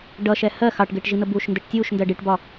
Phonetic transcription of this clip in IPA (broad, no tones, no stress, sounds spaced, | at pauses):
ɖ ʌ ʃ ɛ h ɜ x ɑ ʈ ɡ ɪː ʈ ʒ i n̪ ə b uː ʃ n d ɛ ʈ tʲ uː ʃ n d ɜ ɖ i ʈ b ɒ